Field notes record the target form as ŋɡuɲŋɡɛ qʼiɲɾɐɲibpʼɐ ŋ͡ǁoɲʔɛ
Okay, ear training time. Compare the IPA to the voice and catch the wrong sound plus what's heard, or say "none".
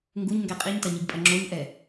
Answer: ɾ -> t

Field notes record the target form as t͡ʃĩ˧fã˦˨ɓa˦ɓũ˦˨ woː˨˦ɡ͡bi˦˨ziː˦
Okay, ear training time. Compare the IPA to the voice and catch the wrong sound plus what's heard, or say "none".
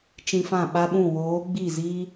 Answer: none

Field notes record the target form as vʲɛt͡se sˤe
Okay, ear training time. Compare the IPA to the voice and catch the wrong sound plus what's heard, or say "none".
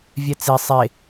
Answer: none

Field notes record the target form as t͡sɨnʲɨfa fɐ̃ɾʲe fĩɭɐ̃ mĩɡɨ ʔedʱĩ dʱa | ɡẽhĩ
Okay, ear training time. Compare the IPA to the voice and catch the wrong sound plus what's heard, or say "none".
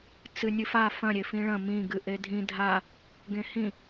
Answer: none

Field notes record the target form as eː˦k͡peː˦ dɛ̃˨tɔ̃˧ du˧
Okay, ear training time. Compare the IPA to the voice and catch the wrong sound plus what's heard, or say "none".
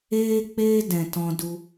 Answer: none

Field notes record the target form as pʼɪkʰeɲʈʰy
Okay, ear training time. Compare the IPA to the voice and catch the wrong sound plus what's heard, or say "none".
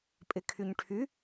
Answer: e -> y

